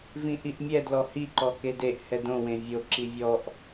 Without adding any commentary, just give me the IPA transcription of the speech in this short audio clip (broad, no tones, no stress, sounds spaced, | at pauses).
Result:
v ĩ ʔ i ʔ mʲ ɛ d l ɔ h i ǃ ɔ k e d e ʔ h ɛ d õ w ẽ vʲ o ǁ i vʲ ɔ ʔ